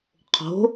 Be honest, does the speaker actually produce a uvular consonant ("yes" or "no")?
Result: yes